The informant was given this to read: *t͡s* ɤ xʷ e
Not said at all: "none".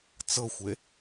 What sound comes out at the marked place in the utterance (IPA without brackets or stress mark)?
t͡s